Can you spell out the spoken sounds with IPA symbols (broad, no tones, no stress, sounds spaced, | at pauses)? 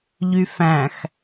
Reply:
ʎ y f æ̃ x